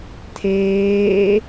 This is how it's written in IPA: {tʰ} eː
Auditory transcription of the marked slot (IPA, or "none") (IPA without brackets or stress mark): tʰ